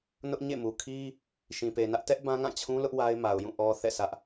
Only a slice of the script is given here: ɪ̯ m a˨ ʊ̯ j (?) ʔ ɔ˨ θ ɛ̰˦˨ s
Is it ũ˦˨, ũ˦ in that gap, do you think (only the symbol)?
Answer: ũ˦˨